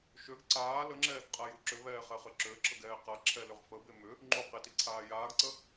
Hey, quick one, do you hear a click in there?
yes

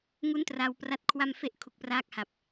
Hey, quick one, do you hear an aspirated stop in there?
yes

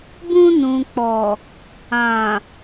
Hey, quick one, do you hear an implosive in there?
no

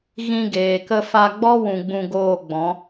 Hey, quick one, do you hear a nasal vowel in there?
yes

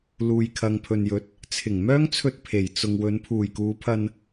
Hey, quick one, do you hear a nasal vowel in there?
no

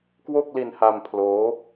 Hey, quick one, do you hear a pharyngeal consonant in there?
no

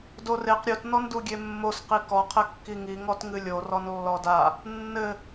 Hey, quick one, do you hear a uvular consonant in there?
yes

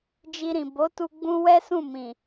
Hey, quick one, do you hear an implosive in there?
no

